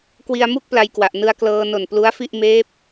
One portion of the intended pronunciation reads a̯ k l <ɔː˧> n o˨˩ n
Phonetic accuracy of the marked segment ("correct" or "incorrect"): incorrect